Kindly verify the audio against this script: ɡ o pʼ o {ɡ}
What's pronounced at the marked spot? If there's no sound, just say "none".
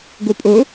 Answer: none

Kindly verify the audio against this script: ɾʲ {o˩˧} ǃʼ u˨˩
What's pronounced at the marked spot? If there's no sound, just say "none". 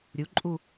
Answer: u˩˧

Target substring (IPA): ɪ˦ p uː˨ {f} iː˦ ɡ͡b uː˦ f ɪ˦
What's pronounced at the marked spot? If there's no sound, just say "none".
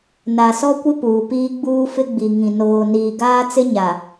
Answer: p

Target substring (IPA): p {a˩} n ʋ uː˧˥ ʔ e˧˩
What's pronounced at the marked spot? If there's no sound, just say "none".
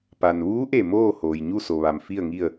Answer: a˩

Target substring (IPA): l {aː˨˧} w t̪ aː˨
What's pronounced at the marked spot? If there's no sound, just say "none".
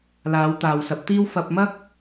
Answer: aː˨˧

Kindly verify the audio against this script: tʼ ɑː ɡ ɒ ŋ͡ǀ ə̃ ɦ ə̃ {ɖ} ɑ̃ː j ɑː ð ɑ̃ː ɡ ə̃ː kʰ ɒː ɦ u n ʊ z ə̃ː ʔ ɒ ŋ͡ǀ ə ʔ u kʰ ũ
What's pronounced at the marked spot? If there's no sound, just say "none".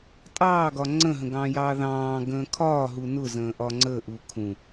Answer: ɡ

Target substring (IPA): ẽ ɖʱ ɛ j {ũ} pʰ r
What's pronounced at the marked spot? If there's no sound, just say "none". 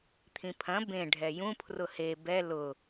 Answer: ũ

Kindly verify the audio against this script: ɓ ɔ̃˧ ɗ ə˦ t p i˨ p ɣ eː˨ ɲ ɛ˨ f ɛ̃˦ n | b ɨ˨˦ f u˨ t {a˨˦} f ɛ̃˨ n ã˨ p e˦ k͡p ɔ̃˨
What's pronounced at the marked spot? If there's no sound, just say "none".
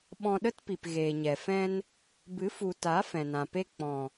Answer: a˨˦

